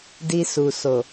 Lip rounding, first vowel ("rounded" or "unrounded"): unrounded